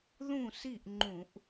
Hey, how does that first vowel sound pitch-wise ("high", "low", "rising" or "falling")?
falling